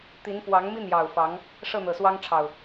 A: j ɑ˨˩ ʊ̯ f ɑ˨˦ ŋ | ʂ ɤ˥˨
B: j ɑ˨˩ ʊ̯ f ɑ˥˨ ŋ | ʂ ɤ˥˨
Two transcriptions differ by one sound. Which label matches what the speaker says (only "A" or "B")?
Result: A